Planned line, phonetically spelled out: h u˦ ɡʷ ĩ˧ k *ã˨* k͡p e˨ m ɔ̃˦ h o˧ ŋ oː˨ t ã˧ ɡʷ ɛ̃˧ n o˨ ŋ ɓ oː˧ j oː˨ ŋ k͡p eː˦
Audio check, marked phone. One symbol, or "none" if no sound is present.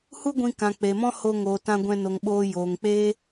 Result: ã˨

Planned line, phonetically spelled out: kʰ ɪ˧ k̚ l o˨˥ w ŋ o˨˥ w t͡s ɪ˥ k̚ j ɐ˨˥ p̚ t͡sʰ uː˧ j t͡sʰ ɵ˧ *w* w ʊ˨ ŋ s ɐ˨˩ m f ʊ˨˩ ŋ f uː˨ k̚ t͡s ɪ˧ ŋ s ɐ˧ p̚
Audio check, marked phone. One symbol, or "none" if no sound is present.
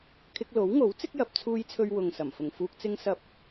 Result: ɥ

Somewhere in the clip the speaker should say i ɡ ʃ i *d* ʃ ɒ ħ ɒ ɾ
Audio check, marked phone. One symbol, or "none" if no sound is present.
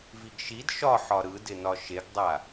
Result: d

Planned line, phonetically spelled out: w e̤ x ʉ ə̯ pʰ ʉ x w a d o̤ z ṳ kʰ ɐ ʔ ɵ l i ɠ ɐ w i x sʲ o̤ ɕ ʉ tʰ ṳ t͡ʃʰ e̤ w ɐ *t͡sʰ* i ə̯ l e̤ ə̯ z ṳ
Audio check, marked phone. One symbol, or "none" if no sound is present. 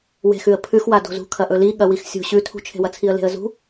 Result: t͡sʰ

